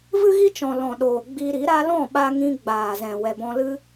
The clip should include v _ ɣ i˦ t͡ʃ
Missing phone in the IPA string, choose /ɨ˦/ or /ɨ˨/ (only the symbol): ɨ˦